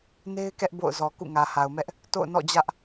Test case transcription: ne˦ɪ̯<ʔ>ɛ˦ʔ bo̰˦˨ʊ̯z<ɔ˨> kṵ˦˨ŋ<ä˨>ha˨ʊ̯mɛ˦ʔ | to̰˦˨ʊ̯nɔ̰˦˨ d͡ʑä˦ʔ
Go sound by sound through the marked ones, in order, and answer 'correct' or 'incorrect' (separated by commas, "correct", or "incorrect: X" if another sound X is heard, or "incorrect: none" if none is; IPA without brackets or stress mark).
incorrect: k, correct, correct